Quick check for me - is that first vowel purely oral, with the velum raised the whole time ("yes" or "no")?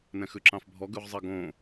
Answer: no